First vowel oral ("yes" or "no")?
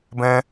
no